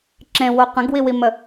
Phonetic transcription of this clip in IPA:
ǁ ẽ w o q ə̃ ɡ w i w i m ə

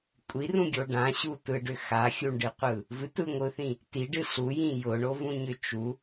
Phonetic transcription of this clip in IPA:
kʷʼ i r ũ ɡʲ o ɖ ã ɕ u t ɯ ɖ ʏ x a xʲ u ɳ ɖ ɨ qʷ ɯ | v ɨ t ɯ ŋʷ ɯ θ ĩ | t i ɖ ɨ ɬ u j ĩ j ʊ ɳ o v ũ ɲ ʏ t͡ʃ u

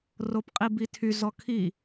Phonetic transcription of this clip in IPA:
r o p qʼ i b i tʰ y z ɔ kʰ i

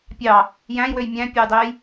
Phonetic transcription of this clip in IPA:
pʲ ɑ | j æ̃ j w ø j mʲ æ̃ pʲ e j dˤ e j

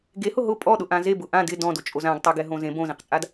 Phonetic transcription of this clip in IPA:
ɡ e h ʊ ɦ ʊ pʼ ɔ ɗ ʊ ʔ ã z e b ʊ ʔ ã d ɪ d ɔ̃ d o t͡ʃʼ o z ã ɡ tˤ a ɡ ɛ ɦ õ z ẽ b õ z ẽ q t͡sʼ a d

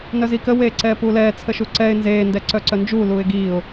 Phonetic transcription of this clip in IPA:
n œ z i k ə w eː ǀ ɛː p u l ɛː t͡sʰ ə ʃ u ǀ ɛ ɪ̯ n z eː n d ɛ ǀ œ ǀ œ n d͡ʒ u l uː ɪ̯ ɡ iː ʊ̯

